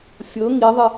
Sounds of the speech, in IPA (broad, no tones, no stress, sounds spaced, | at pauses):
fʲ ɤ ŋ i ðˤ ɪ